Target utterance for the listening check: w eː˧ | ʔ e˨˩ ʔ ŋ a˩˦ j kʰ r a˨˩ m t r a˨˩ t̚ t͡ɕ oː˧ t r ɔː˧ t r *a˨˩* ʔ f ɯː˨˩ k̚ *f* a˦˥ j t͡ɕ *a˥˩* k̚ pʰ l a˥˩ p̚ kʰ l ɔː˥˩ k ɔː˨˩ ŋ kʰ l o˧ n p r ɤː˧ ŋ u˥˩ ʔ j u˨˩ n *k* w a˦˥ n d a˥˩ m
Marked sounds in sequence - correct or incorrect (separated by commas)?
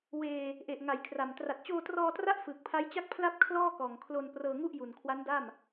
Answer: incorrect, incorrect, correct, incorrect